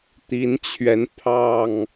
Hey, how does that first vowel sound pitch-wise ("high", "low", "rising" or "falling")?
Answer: rising